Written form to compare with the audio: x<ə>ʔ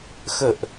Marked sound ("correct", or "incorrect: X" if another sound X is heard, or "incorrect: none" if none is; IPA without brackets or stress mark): correct